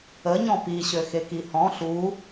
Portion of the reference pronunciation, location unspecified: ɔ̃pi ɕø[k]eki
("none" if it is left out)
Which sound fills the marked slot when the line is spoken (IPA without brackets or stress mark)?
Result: x